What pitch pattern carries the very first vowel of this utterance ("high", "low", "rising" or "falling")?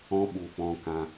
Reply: high